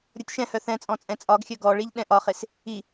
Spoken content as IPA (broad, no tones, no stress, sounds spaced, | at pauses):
ɾʲ ɔ tʲ ʃ ɛ̃ h œ θ ɛ̃ t͡sʼ ɔ̃ t͡sʼ ɛ̃ t͡sʼ ɒ ɡ xʲ œ ɡ ɔ ɭ i ʎ ɗ ɛ̃ ʔ ɒ χ e s | i